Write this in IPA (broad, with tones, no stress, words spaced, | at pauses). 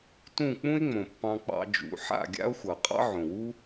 tũ˦˨k͡pũ˦e̯ŋ͡mõ˨ pːɑ̃˧k͡pɑ̰˧d͡ʒṵ˨˦ ħa̰˦˨ɡʲa̰˦o̯xʷʌ˨ qʼɑ̰˦ʕõ˨wu˦